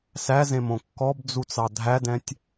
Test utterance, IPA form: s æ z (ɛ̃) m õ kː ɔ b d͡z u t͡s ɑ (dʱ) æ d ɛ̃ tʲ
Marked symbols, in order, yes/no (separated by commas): no, yes